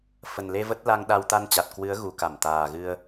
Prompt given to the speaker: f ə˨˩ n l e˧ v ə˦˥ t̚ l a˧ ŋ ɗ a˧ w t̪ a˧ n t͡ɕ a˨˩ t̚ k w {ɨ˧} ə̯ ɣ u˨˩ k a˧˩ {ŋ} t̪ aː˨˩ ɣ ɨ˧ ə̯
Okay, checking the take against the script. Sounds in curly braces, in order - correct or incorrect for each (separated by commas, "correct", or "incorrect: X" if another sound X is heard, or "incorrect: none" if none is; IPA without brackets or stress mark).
incorrect: ɨ˨˦, incorrect: m